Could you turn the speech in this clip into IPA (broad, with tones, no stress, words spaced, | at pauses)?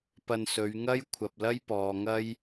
pɐ˧nsɵ˨˧ɥ ŋɐ˥j kʷʰɐ˨p̚lɐ˥jpɔː˨ŋɐ˥j